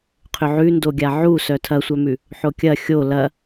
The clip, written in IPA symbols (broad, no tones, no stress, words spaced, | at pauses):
qʰʏʕʉndoɡʲa ʕusœ tʰɐsʷœmʉ | ħokʲɐ xʲo lɐ